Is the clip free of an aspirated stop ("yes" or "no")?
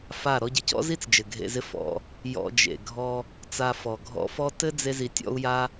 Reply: yes